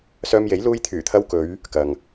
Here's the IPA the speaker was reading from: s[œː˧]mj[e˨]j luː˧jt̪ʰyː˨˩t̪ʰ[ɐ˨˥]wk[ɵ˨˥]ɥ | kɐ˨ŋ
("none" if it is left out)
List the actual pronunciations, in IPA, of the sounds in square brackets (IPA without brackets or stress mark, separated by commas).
œː˧, e˨˥, ɐ˧, ɵ˨˧